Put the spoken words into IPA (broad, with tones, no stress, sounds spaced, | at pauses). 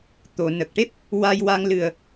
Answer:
t̪ o˨˩˨ n ə˨˩ k̚ ʈ e˦˥ p̚ | w a˧ j w a˧ ŋ l ɨ˨˩ ə̯